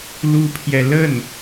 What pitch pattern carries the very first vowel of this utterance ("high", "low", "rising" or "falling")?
high